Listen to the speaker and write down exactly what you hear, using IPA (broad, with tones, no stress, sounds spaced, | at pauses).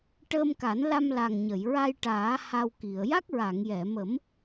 ʈ əː˧ m k a˨˩˦ n l a˧ m l a˨˩ ŋ ɲ ə˨˩˨ j ɹ a˧ j ʈ aː˨˩˦ h a˧ w k i˨˩˨ ə̯ j a˦˥ k̚ ɹ a˨˩˨ ŋ j ɛ˨˩˨ m ə˨˩˦ m